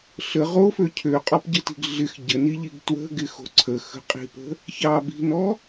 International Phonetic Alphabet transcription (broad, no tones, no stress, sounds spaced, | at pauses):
ɬ ə ʁ o f ø cʰ ø qʼ ɔ p ɟ ə t i̤ ɡ ɮ ɪ x ɟ ə n i ʎ i ɡ t w ə̤ ɡ ɪ x o̤ ǀʰ ə x ə̤ qʼ i̤ p ə̤ | ç ɑ b i̤ n ɔ